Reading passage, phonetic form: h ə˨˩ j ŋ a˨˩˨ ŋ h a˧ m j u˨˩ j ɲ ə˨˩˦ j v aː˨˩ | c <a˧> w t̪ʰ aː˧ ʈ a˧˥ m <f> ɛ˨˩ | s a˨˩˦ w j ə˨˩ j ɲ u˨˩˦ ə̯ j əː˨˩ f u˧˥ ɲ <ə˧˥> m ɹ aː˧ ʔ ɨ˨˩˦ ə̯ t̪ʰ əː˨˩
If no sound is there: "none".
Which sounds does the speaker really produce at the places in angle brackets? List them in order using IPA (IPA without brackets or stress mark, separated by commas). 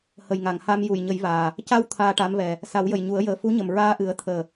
a˧, v, ə˨˩